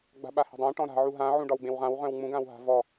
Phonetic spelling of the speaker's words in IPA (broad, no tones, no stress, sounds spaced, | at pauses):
ɡ͡b a̤ ɓ a h e̤ dˤ ã ʈ ɔ̃ ɾ a̤ ʕ u ɦ ã ʕ ũ ɖ ɒ w ɡ͡b ẽ w ʁ ã w ʁ œ̃ w ŋ͡m ũ ɡ ã w ɦ a̤ v ɔ